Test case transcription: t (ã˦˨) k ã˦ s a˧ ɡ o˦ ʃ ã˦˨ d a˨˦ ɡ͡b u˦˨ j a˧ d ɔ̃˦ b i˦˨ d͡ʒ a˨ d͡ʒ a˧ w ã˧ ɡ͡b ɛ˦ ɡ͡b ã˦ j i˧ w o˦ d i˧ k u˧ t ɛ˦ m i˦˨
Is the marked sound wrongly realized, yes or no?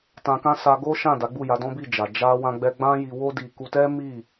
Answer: yes